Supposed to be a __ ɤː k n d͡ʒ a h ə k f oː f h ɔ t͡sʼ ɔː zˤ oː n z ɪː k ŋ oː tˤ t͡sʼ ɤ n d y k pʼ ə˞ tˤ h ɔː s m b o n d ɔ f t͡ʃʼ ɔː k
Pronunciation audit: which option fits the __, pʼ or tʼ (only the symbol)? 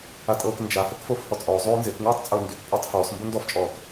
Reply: tʼ